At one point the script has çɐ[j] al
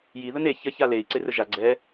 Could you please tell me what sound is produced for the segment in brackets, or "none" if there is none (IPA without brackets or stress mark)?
ç